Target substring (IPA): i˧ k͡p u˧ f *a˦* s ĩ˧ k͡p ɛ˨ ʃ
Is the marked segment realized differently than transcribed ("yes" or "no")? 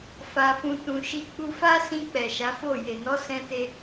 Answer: no